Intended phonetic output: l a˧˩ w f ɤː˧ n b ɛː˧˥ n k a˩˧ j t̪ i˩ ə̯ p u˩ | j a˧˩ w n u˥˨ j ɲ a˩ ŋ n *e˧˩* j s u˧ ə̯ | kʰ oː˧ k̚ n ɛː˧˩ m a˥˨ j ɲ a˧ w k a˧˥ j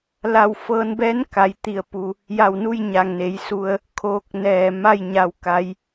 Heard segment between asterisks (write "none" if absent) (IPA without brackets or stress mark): e˩˧